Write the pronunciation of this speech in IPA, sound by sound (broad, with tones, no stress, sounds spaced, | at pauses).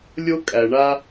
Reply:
lʲ o˦ kʼ æ˨ ɳ a˦